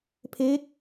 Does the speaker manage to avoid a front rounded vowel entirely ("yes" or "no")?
yes